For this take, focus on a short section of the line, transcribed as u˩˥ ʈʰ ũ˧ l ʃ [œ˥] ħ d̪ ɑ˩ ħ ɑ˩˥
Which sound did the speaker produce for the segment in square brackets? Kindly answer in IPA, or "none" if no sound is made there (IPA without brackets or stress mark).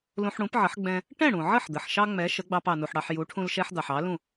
ɛ˥